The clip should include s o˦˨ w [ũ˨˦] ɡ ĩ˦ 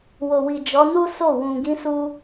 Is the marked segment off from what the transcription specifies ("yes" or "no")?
yes